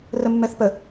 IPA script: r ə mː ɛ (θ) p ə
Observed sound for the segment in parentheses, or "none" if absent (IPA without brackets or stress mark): θ